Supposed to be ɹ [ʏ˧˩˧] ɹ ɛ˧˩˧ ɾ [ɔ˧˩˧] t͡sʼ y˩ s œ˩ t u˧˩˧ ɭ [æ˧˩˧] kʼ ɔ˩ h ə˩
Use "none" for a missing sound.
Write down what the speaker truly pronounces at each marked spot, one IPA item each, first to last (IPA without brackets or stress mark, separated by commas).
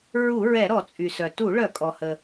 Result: u˧˩˧, ɔ˧˩˧, œ˧˩˧